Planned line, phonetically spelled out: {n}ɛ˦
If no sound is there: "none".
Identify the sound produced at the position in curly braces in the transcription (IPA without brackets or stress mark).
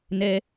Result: n